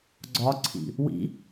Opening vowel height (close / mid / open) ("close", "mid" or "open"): open